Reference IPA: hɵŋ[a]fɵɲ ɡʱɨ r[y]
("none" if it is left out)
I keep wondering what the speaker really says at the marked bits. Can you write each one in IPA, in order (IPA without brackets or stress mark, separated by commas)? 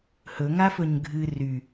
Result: a, y